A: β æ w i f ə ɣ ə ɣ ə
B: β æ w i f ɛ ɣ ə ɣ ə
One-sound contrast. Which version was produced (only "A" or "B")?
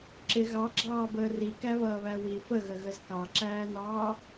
A